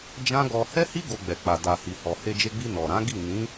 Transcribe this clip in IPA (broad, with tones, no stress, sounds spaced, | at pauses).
d͡ʒ ã˦ ɡ ɔ˧ h ɛ˦ h i˦ ɡ o˧ ɡ͡b ɛ˨ k͡p a˨ d a˨ h i˨ h ɔ˨ h e˧ d͡ʒ e˧ ɡ͡b i˧ n ɔ˨ ɾ ã˨˦ ɡ i˦˨ n ĩ˨˦